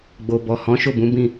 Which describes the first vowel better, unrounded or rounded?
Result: rounded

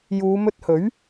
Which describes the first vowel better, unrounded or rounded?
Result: rounded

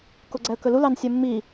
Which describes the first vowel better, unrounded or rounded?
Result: rounded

